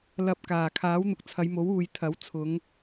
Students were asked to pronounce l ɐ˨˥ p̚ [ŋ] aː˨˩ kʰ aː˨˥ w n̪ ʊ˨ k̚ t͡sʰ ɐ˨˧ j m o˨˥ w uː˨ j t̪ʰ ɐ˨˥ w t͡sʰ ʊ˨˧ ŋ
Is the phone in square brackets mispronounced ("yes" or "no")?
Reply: yes